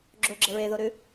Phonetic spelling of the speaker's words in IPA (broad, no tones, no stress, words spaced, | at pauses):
ɡ͡ǁoɡ͡ǁə ɹeðoɾʉ